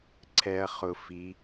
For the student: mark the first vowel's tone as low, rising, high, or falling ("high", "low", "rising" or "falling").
low